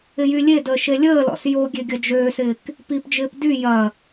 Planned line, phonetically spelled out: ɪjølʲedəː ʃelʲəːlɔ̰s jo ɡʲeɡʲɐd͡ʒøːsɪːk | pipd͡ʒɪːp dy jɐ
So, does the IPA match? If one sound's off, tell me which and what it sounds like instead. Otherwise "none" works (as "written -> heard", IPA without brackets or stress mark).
ø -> y